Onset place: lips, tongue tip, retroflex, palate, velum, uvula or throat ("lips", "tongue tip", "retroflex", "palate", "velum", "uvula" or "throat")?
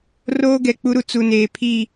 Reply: tongue tip